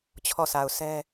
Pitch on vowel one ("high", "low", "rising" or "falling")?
falling